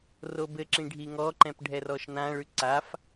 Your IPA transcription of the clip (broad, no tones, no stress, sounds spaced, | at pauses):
r o b ɘ ǁ ĩ ɖʱ i ŋ ɔ ǃ ɛ̃ p ɖʱ ɛ r ɔ ʃ n ã ɭ ʉ ǀ a f